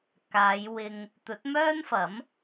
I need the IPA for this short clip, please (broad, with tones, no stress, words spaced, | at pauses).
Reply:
kaː˨˧j wɪ˧ŋ | t̪ɵ˨˥t̚mœː˥nfɐ˨˥m